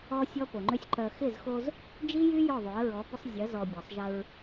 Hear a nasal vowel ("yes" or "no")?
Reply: no